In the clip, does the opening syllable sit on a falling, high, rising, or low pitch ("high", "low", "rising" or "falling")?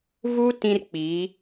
high